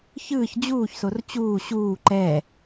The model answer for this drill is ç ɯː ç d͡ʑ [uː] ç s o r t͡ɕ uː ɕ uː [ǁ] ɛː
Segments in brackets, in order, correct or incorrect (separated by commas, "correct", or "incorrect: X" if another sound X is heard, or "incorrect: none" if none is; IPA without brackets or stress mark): correct, incorrect: ǃ